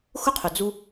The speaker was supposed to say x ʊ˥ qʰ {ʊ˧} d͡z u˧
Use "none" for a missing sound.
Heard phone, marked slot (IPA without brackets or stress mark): ʊ˩